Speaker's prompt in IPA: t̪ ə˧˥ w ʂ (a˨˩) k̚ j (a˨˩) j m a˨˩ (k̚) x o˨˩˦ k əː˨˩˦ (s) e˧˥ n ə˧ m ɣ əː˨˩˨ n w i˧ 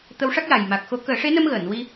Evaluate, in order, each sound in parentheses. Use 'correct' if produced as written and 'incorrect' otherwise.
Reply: incorrect, correct, correct, incorrect

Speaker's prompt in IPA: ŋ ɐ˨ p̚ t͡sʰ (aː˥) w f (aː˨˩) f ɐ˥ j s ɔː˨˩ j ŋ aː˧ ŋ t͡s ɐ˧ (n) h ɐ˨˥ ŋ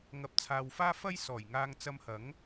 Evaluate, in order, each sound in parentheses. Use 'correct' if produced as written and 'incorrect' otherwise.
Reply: incorrect, incorrect, incorrect

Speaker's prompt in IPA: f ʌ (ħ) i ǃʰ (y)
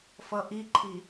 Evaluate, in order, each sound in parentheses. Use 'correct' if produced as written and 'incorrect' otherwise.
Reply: incorrect, incorrect

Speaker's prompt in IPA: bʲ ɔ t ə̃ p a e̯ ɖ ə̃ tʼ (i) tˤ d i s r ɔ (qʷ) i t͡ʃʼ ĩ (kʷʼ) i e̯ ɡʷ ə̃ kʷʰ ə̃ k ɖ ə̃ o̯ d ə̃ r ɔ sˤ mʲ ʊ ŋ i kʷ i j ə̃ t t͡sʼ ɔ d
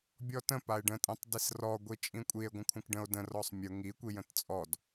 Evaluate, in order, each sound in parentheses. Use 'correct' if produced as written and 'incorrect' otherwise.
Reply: incorrect, incorrect, correct

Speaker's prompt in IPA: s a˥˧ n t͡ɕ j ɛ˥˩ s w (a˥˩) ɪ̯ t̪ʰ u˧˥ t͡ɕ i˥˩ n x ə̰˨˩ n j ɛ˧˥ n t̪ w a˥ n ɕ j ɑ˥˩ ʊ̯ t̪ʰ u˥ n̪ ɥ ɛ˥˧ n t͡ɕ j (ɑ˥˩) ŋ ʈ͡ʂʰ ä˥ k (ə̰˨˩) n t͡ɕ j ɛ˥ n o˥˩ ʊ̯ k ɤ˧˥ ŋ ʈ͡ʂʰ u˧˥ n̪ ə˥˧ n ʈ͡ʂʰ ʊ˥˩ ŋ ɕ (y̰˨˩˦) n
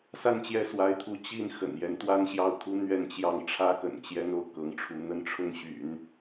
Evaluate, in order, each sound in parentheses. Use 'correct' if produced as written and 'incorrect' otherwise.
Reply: incorrect, correct, correct, correct

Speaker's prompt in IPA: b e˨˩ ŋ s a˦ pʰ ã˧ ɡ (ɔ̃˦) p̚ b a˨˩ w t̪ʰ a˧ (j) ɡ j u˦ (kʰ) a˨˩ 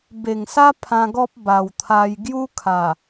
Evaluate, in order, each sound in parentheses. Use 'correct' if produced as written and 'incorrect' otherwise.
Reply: incorrect, correct, correct

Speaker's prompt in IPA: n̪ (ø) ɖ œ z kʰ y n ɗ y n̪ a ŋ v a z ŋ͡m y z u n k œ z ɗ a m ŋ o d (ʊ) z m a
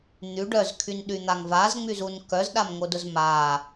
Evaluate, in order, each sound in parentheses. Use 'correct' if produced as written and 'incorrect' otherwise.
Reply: incorrect, correct

